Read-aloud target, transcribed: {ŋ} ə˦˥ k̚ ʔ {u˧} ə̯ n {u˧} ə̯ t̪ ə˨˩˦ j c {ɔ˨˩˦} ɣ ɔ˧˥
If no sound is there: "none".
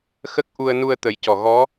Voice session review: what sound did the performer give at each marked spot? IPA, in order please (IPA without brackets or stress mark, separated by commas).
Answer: x, u˧, u˧, ɔ˨˩